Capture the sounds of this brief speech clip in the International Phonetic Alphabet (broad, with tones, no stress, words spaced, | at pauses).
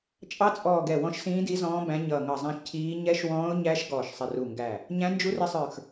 t͡ʃʼɑ˧˥t͡sʼɔː˧˩ ɡɛ˧˩wɔ̃˧˥ʃsĩː˧˥di˧˥ zɔ̃ː˧˥bæ̃˧˥ɲʌː˧˩ ŋʌ˧˩zˤæ̃˧˥ʃ cʰiː˧˥ ɲɛ˧˥ʃwɔ̃ː˧˥ʊ̯ɲæ˧˥ʃ ɡɔː˧˩ʃsˤɪ˧˩ru˧˩ŋɡæ˧˩ | ɲæ̃˧˥nd͡ʒu˧˥rɪ˧˥sˤə˞˧˩x